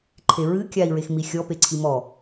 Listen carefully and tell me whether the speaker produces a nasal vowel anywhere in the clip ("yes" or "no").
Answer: no